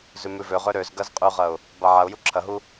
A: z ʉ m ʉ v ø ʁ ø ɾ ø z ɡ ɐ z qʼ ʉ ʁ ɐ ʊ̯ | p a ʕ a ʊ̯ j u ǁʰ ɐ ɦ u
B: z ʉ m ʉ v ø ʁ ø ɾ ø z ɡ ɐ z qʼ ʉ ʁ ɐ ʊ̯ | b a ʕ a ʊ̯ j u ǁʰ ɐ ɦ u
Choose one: B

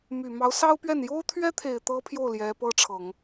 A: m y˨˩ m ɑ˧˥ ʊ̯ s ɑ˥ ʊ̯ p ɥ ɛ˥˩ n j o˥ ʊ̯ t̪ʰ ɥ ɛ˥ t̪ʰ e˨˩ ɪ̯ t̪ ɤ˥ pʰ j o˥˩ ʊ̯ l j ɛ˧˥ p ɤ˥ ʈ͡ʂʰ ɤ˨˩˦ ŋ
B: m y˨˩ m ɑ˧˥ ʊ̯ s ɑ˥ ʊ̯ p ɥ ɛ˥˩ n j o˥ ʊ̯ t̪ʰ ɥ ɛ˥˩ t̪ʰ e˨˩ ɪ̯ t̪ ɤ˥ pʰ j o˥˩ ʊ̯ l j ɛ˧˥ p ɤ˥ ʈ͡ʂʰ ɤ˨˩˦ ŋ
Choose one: A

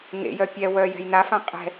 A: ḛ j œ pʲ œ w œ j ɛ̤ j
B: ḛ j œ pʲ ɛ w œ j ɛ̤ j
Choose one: B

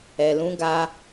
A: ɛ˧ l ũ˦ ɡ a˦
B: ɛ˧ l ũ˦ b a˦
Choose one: A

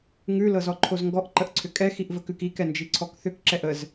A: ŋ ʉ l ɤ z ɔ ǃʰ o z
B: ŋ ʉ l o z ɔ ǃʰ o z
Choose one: A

